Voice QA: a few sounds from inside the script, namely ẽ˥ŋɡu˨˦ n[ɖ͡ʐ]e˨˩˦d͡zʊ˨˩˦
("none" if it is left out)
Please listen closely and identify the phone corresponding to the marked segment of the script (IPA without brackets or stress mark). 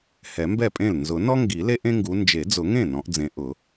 d͡ʒ